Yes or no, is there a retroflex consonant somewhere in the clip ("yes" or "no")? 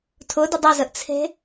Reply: no